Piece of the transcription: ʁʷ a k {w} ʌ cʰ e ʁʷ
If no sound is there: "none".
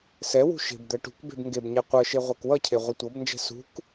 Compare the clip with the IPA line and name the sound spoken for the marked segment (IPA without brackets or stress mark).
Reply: w